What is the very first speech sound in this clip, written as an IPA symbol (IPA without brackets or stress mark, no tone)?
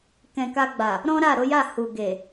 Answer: k